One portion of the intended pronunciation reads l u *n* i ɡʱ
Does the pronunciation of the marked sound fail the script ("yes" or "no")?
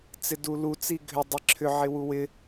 yes